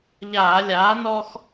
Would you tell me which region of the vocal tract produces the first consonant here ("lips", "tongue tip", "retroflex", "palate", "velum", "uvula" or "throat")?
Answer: palate